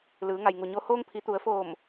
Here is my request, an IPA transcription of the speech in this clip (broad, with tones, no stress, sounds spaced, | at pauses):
l ɯː˩˧ ŋ a˩ j ŋ u˩ ɲ o˧ h oː˧ ŋ pʰ i˩˧ t̪ u˩˧ ə̯ f oː˧˩ m